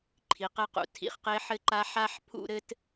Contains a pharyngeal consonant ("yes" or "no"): yes